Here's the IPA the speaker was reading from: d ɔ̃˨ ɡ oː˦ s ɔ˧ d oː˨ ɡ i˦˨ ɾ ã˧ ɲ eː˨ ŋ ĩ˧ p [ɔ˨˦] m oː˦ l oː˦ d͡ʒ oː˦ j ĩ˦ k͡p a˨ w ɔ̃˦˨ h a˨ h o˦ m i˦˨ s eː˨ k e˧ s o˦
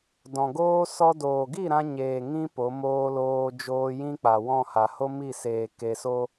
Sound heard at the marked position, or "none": o˨˦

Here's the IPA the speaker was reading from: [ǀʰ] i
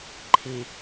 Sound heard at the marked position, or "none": ǃʰ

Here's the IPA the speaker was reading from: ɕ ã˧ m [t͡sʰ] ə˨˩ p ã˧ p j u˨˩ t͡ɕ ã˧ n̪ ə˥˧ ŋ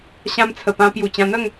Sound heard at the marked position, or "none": t͡sʰ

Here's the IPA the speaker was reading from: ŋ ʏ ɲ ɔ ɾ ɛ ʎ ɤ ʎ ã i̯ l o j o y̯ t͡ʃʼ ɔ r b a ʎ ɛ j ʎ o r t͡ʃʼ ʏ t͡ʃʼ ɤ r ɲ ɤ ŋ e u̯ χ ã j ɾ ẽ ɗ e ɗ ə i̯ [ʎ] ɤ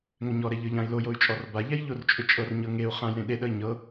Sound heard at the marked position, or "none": ɲ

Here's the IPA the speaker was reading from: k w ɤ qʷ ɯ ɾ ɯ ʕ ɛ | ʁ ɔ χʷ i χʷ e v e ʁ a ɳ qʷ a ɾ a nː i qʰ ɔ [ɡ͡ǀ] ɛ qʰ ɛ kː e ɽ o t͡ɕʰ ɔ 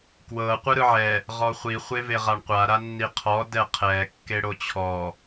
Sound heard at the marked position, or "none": d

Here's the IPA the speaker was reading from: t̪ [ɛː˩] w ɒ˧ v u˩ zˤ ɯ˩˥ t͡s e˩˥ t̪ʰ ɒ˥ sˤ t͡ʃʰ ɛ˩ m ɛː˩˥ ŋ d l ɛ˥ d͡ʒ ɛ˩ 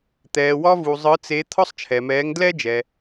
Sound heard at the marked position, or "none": ɛː˩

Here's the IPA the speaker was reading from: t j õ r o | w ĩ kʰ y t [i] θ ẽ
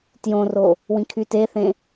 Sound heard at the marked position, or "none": e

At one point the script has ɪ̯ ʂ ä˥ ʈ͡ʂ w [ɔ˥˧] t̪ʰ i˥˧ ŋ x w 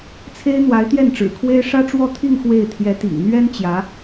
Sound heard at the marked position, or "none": ɔ˥˧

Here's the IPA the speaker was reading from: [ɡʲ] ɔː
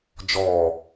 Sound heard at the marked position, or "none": d͡ʒ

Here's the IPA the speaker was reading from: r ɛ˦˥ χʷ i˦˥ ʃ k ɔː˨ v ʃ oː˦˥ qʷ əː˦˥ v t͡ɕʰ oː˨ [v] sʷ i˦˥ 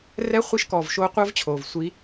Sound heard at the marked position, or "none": v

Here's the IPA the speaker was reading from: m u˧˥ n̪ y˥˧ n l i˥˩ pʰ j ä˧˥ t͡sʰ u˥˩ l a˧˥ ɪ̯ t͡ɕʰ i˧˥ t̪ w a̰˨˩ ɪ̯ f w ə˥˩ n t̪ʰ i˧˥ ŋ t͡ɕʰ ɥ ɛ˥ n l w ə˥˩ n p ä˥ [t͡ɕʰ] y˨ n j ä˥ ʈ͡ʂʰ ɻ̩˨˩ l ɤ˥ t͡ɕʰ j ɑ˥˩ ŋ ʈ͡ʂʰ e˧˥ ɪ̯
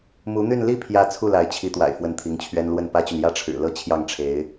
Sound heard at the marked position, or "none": t͡ɕ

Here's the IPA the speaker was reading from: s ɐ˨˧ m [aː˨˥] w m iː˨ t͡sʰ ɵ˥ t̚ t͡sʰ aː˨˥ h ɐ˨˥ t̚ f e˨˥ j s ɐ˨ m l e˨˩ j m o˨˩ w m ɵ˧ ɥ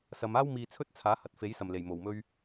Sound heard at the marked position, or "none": aː˥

